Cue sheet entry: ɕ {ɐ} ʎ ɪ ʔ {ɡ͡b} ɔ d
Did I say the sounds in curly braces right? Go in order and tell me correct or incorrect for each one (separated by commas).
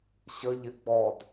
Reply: incorrect, correct